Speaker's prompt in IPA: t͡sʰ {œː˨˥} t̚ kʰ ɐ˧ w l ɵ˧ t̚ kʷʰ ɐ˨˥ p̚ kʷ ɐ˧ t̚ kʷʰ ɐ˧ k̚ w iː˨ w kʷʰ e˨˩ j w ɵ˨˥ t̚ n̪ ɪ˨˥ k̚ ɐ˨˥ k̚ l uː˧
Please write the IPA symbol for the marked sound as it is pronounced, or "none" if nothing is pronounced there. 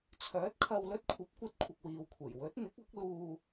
œː˨˥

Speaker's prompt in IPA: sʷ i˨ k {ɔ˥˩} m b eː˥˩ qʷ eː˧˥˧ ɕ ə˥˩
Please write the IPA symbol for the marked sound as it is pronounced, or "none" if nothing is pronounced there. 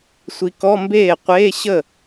ɔ˧˥˧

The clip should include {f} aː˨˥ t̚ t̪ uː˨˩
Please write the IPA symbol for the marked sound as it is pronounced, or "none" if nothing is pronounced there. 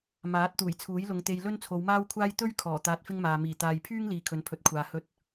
m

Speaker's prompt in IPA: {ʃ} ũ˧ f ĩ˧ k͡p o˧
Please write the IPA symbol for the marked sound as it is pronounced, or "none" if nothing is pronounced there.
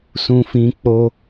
s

